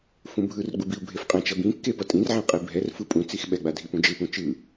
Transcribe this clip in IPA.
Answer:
f ũ bʱ ɯ r ɡ͡b u b i u̯ bʱ e f qʼ ɛ̃ t͡ʃ ʌ b ĩ kː e p ʌ tʼ ĩ r ʕ ẽ qʼ i bʱ ɛ r f ɯ pʼ ũ t͡s i x ɓ ɛ ɡ͡b a dʱ i p ũ d͡ʒ ɯ p ũ t͡ʃ ɯ

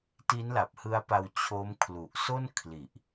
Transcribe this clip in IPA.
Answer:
t i˦˥ n l a˨˩ p̚ h ɯ˦˥ a̯ p a˧ w t͡ɕʰ o˦˥ m kʰ l u˨˩ ʔ s o˥˩ n kʰ l i˨˩ ʔ

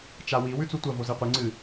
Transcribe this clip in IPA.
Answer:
t͡ʃ a w i w ʉ t͡s u tʷ ɐ v o z e qʷ ɨ ŋ͡ǀ ɨ

